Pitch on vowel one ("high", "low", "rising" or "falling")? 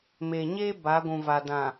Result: low